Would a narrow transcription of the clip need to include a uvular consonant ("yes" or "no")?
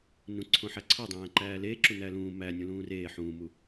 no